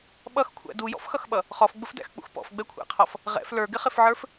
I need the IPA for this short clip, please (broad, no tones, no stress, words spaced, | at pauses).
ɓʌxkʷʰæ̰ dujɔ̰fxʌxɓʌ | χɔfɡ͡bʊfdæ̰xk͡pṵx pɔ̰fɡ͡bɛkʷʰæ̰qʰɔf | ʁɛ̰f lə˞ɡɪχɪfʕə˞f